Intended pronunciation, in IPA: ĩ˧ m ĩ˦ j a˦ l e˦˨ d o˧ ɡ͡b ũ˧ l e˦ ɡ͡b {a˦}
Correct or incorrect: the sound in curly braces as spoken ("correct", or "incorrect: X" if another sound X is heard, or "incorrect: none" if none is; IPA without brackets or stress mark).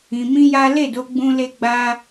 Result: correct